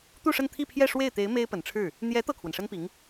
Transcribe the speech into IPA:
t̪u˥˧ʂə˥˧nt̪ʰi˥˧pʰjɛ˥˧ ʂwe˥˩ɪ̯t̪e˧˥ɪ̯ me˥ɪ̯pə˨˩nʈ͡ʂʰɻ̩˥˩ | n̪jɛ˧˥ t̪ɤ˥˩kʰwə˩nʂə˥npi˧˥ŋ

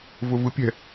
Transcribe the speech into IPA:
vʊvɯpʲɛ̤

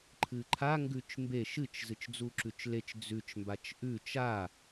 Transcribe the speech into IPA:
ǃʰɨǃʰa ŋɡʉt͡ʃmbe ʃɨt͡ʃ zɨt͡ʃd͡zuǁʉt͡ʃlet͡ʃ d͡zʉt͡ʃ mbat͡ʃʔʉ t͡ʃa

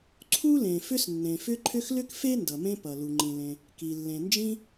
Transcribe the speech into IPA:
ǀʰu˥lẽ˩ fʏ˥snːẽ˩fʏ˥ǃʰʏ˥x lʏ˥kfe˥ ndʌ˩mẽ˥pʌ˩ lu˩ŋ͡ǃĩ˩lẽ˩ | ki˩ lːẽ˩nd͡ʒĩ˥

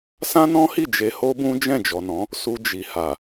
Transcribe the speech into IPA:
sã˦nɔ̃˦hi˦˨ d͡ʒe˧ho˦bũ˦ d͡ʒɛ̃˦˨d͡ʒɔ˨nɔ̃˨˦ | su˧d͡ʒi˨ha˨

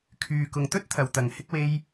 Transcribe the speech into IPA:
kʰyː˨kʊ˨ŋt̪ɵ˥t̚ t̪ʰɐ˨˧wt̪ɐ˨˧ŋhɪ˥k̚ we˧j

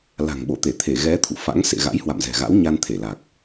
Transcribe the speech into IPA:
la̤˨˩ŋɓo̰˧˨ t̪e˧˩t̪ʰe˧˩ɣɛ˨˦ t̪ʰṵ˧˨ fa̰˧˥ŋ sḛ˧˨ɣa̰˧˥j hwa̰˧˨mzɛ̤˨˩ɣa̰˧˥wɲa˧n t̪ʰe˧˩la˨˩k̚

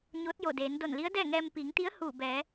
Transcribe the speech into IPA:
ɲoː˧˥t̚jo˧˩deː˩˧n do˧˩nli˧˥ə̯dɛː˥˨ŋɛː˧m piː˩˧ŋt̪i˧˥ə̯ huː˧˩bɛː˩˧

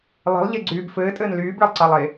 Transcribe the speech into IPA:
lˠe̤lˠʎeɡ͡ǀyːb fɘːtʼɘːn lyːbɭəlˠǀɑlˠe

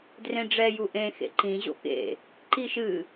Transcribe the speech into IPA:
drẽɖ͡ʐɛ juʔẽ xḛǃĩ ʑo̰kḛ | ǃiʃɨ

